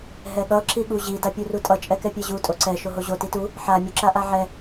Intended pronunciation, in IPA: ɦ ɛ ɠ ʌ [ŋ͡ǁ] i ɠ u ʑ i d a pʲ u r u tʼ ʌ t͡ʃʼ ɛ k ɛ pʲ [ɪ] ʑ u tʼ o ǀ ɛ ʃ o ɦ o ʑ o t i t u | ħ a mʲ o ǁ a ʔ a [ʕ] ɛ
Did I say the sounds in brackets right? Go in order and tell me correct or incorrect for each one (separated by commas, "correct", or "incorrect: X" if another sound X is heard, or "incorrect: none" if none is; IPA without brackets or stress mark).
incorrect: ǁ, incorrect: ɛ, correct